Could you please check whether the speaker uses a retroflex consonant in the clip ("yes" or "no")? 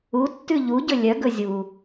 no